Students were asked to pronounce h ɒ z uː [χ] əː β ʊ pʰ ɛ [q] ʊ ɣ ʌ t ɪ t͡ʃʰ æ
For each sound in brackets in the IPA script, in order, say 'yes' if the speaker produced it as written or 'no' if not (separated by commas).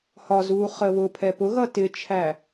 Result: yes, no